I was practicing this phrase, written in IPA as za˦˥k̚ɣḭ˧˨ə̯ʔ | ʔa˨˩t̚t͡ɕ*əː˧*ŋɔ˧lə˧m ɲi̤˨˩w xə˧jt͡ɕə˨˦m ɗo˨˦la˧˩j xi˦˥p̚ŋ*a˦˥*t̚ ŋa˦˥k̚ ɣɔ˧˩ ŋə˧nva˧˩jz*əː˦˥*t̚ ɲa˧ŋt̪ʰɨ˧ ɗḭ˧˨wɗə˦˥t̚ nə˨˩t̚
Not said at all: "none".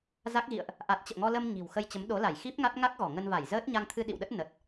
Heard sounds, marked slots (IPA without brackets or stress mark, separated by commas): ə̰ː˧˨, a˦˥, əː˦˥